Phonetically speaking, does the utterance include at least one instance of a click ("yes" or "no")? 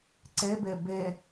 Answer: yes